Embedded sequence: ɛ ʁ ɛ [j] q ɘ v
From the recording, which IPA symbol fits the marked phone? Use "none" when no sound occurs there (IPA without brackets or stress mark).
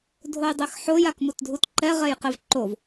j